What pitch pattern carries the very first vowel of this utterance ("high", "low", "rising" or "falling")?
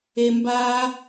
low